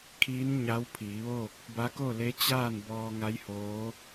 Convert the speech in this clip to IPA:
kʰiː˧˥n ɲa˧˥w pʰiː˩˧ʋoː˥˨k̚ | ba˧˥ko˥˨le˧˥ t͡ɕaː˥˨n bɔː˧ ŋa˧˥jhoː˧˥

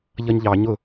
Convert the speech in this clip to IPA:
ʎʌɲʎɑ ɲʊ

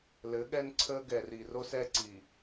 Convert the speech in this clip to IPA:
lɘ˨˦ɠɛ˦nǀʰəː˦ ɡɛ˨ri˨ro˦s ɛ˦ǀi˨

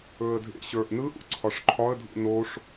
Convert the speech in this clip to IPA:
ɵə̯dʱḛɕə˞ʔ nɯʔ ṵǀʰɒʂǃʰɒə̯dʱṵ noʂ

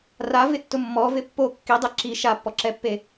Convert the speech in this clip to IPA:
ravɪtːʊ mːɔvɪ pːo kːidˤe ǁi ʃapːɔǁɛpːe

